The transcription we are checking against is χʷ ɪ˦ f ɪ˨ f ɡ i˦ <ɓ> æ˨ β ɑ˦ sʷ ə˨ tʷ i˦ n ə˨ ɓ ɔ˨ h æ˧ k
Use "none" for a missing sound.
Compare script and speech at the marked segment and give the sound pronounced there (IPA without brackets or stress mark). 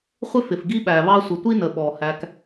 ɓ